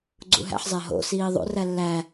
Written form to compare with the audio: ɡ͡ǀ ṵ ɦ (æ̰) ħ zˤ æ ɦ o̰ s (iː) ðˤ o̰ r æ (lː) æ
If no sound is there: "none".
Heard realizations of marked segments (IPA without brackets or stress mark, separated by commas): æ̰, iː, lː